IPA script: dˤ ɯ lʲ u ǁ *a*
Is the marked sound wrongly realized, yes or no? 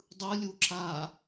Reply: no